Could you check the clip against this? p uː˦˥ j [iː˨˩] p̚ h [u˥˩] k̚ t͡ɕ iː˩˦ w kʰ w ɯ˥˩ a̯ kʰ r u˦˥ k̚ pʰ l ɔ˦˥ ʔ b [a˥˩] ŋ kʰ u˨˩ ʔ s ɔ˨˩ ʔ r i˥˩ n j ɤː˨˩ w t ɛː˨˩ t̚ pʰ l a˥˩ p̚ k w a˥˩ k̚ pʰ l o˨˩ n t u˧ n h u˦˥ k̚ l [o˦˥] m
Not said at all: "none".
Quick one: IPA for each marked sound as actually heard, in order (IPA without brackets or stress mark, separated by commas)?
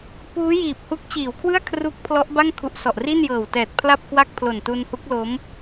iː˨˩, u˦˥, a˥˩, o˦˥